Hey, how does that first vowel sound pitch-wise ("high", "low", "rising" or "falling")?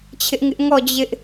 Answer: high